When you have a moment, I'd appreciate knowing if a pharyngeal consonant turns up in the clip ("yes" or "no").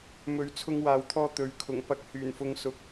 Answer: no